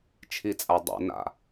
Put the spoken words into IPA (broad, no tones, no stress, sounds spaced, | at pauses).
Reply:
t͡ʃʰ i t͡sʼ a dˤ ɛ̰ n a̰